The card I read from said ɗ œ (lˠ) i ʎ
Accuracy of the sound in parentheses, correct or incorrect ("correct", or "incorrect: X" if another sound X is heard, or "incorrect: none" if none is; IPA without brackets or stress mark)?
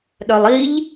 correct